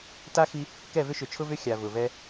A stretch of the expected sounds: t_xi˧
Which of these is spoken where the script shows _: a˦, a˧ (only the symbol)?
a˦